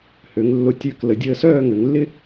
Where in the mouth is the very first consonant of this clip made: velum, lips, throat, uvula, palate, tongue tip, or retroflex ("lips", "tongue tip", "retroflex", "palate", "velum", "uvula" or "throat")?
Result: throat